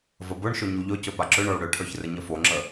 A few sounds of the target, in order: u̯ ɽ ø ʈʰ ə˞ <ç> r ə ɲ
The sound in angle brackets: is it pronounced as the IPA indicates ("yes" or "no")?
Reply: yes